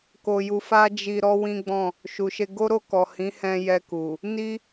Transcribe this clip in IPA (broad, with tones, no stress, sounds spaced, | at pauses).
k o˧ j u˧ f a˦ d͡ʒ i˧ ɾ ɔ˦ w ĩ˦ ɡ͡b ɔ̃˦˨ | ʃ u˨ ʃ e˧ ɡ o˦ ɾ o˦˨ k ɔ˨ h ĩ˨˦ h ɛ̃˧ j ɛ˧ k u˨ | n i˦